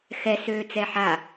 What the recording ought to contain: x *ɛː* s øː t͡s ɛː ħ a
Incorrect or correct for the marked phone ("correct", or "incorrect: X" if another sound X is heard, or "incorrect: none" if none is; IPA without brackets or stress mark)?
incorrect: ɛ